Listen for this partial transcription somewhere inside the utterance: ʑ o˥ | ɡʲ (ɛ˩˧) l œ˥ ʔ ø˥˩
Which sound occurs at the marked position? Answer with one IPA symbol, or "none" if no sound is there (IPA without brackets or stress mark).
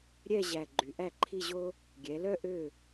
ɛ˩˧